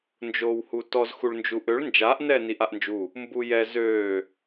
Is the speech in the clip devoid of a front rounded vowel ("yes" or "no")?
no